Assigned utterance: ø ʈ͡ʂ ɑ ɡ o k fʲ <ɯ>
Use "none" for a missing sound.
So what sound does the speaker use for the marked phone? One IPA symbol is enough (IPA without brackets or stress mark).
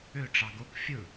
ɯ